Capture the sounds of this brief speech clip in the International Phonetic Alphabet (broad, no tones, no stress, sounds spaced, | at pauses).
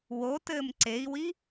w o t ɘː m ǀ e i̯ w i